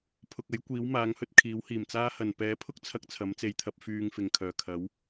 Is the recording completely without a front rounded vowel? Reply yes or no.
no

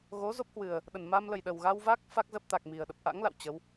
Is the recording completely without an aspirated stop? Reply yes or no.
yes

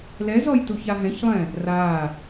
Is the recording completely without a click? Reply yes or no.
yes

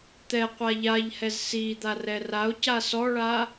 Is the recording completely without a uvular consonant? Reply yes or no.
no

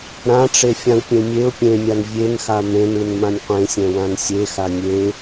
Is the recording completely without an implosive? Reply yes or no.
yes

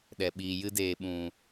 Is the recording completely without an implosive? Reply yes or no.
no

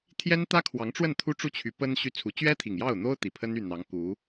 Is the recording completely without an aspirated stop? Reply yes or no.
no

